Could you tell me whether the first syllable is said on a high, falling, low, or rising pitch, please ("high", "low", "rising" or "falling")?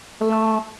high